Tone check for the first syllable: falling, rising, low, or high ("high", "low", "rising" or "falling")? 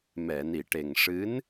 low